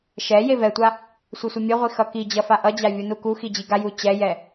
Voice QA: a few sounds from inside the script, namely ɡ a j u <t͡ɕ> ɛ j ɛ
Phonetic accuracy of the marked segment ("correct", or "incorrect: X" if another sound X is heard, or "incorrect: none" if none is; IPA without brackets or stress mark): correct